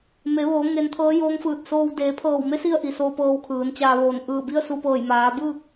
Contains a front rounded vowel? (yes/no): no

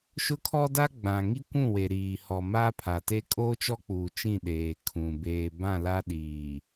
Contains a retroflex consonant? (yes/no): no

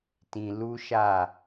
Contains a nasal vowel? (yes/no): yes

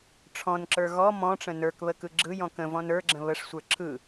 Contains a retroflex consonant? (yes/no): yes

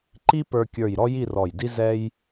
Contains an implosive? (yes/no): no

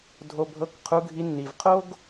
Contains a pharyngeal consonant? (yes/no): no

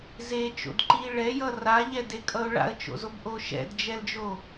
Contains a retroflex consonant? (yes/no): yes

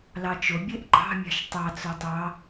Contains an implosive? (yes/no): no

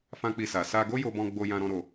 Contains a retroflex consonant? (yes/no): no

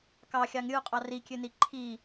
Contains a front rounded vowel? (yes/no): yes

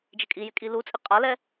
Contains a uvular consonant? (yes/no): yes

